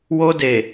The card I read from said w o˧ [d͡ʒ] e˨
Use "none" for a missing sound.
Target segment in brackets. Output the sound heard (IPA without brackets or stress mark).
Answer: d